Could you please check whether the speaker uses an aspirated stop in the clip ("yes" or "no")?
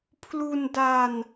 yes